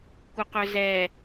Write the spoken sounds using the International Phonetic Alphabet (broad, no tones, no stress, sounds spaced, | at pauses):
kʷ ə q ɵ z ɛ